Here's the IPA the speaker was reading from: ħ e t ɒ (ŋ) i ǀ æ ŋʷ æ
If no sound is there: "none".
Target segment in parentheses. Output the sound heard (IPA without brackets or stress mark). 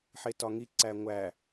ŋ